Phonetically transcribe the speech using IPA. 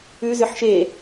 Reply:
ʉ zʏħʃe

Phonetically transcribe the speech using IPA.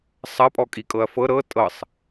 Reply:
sˤɐpʼɔ kʼikʼɤɐ̯fɤ ɾɤ tʼɤsˤ

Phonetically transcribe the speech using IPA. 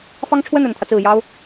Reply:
fɑ˥ŋʈ͡ʂʰwə˥˩n ə˨˩nt̪ʰä˦t͡sɹ̩˨˩ jɑ˥ʊ̯

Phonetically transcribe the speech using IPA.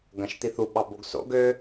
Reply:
ɡɐ̃ʃt̪iθu ɓɑboɡso̰ɡ ø

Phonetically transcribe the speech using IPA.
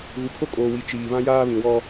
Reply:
ɣu˨kʰo˦kʼoː˨wi˨ t͡ʃiː˨ βã˦jaː˦βĩ˨wɔ˦

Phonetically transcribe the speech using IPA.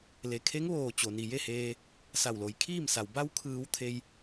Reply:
le˩kʰe˧˥ŋʋoː˧˩ t͡ɕo˩ni˩je˥˨heː˧ | sa˧˩wlo˩˧jkʰiː˥˨msa˩w ba˧wkʰɯː˩˧w t̪ʰe˧j

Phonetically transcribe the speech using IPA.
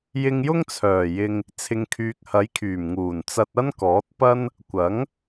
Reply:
jɪ˧ŋjʊ˥ŋt͡sʰœː˨˩jɪ˧ŋ | t͡sʰɪ˨ŋkʰyː˨k̚hɐ˨˥jkʰyː˨˩m ŋuː˨˩nt͡sɐ˧t̚ ɐ˥nkɔː˨˥t̚ pɐ˥n | kʷɐ˨˥ŋ

